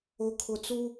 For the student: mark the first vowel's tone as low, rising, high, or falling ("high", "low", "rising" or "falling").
low